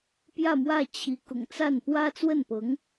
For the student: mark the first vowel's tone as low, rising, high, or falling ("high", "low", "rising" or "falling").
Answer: falling